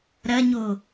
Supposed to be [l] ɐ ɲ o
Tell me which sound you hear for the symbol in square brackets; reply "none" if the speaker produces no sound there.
ɾ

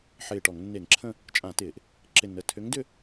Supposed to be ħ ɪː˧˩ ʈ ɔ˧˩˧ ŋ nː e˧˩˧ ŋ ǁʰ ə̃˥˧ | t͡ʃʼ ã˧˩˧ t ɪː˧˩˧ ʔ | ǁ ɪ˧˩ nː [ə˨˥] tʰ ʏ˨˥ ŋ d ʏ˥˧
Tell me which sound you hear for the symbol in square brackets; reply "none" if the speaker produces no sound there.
ə˩˧˩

